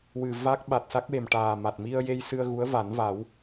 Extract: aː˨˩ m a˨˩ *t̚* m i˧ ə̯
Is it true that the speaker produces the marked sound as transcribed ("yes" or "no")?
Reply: yes